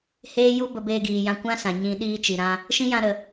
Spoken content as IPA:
h eː˦ j u˦ b ə˧ b eː˧ ɡ iː˨ j ã˧ kʷ ã˦ s ã˨ ɲ ĩ˧ ɗ iː˧ t͡ʃ i˨ ɾ ã˧ | ʃ ĩ˦ j ã˧ ɾ ə˨

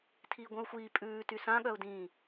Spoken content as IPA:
tʰ iː ɡʷ œ̃ ʊ̯ xʷ iː pʼ ʉː t y s ã ɠ œ ʊ̯ d ĩː

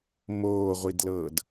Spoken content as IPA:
m oː ʁʷ i d l ɤː d

